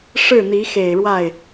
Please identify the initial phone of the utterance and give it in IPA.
ʂ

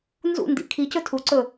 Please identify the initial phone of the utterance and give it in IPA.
n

